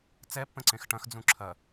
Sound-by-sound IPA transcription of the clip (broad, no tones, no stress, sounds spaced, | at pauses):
t͡s ɛ pː ə̃ ǀ ẽ x ʈ ɐ̃ x d͡z ũ ǁʰ ɐ